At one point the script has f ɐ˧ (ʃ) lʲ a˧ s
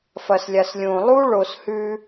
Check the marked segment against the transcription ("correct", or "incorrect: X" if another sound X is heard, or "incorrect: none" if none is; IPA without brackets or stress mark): incorrect: s